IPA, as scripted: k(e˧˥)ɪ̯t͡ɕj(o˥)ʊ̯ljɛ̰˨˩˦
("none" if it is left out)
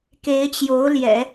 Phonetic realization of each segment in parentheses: e˧˥, o˧˥

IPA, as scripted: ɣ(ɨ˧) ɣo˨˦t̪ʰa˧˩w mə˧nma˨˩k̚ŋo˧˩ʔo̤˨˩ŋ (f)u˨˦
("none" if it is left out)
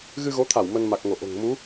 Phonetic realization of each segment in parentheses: ɨ˧, m

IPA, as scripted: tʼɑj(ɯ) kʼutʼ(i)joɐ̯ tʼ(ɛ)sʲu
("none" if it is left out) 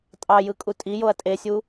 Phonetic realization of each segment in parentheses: ɯ, i, e

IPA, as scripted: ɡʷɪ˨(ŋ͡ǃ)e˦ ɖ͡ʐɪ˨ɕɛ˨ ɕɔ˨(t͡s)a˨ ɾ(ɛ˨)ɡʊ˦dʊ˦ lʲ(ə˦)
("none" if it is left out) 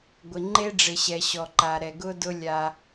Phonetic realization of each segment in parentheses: ŋ͡ǃ, ǃ, ɛ˨, a˦

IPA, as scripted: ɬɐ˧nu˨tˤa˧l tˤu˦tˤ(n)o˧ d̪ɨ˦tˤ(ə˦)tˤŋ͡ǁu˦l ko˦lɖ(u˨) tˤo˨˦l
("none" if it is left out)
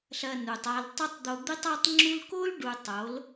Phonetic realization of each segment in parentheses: d̪, a˦, u˨

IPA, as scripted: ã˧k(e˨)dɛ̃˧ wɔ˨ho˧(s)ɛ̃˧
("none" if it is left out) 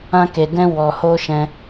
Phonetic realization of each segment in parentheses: e˨, ʃ

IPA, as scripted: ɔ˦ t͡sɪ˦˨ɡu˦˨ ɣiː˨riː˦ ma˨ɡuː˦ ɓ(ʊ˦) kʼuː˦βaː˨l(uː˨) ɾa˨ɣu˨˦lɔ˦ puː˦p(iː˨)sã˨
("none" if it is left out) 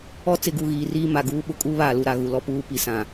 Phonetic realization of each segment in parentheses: ʊ˦, u˨, i˨

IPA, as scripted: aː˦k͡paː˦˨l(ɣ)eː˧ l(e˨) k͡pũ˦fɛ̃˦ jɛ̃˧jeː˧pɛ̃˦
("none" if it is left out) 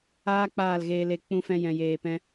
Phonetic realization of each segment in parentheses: ɣ, e˧

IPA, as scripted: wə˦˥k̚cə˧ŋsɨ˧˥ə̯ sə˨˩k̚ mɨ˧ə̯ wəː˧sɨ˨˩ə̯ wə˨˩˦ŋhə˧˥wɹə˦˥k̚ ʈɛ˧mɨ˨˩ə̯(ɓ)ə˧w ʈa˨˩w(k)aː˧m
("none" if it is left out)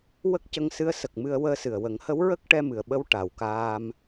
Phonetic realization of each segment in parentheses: ɓ, k

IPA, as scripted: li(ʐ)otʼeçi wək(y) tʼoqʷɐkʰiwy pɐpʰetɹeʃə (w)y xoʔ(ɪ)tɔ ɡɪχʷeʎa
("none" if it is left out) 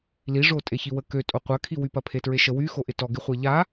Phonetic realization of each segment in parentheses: ʐ, ø, w, ɪ

